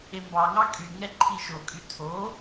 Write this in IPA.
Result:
embɑŋɑ kʼyŋɛ ǃʰiʃokʼy tʰo

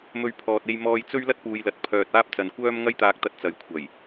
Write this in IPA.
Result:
mɵ˧ɥpʰɔː˨t̚ e˧j mɔː˧jt͡sɵ˥ɥ lɐ˥t̚puː˨˧jlɐ˨t̚ pʰœː˨t̚ aː˥p̚t͡sɐ˨nkʷœː˥m ŋɐ˧jt̪aː˨k̚t̪ɐ˨t̚ t͡sɐ˨˧jkʷʰɐ˨˩j

